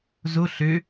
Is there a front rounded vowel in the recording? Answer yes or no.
yes